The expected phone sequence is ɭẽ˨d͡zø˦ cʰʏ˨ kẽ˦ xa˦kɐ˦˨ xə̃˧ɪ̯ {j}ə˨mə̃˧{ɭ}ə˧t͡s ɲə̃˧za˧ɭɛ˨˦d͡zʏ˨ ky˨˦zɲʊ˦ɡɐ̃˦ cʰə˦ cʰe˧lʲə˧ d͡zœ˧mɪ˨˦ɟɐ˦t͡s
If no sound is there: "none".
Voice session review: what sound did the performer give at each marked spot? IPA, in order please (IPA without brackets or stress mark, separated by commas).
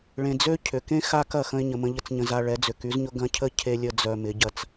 ɲ, ʎ